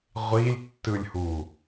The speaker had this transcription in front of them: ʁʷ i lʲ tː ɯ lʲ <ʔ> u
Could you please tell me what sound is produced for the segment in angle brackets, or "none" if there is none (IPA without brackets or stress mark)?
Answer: h